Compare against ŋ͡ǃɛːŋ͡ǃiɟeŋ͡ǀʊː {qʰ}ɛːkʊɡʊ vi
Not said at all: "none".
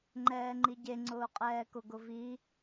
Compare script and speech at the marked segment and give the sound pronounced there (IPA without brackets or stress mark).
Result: qʼ